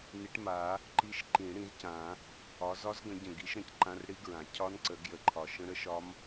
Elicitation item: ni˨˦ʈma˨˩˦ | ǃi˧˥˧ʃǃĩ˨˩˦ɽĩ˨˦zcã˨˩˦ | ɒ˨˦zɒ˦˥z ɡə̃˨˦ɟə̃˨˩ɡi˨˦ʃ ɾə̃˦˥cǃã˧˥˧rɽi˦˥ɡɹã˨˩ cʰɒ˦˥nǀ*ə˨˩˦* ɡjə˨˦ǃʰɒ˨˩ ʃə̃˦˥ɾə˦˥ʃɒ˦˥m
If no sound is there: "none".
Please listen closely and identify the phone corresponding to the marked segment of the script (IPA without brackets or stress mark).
ə˨˩˦